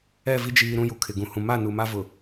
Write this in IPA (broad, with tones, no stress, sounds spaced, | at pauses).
ɛ˦˨ v i˦ d͡ʒ iː˨ ɾ ũ˦ j u˨ kʰ ɪ˨ ɡ ũ˨ h ũ˨ m a˦˨ n u˨ m a˦ v ʊ˨